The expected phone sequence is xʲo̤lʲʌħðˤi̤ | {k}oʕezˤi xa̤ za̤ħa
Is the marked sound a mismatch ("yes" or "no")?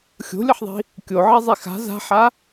yes